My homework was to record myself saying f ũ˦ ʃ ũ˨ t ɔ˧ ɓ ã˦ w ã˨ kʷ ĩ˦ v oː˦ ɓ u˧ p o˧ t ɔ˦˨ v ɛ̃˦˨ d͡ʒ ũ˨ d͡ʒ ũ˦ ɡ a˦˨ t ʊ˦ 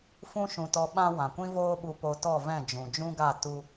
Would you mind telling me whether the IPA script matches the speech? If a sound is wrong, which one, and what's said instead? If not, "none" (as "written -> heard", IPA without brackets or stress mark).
ʊ˦ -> u˦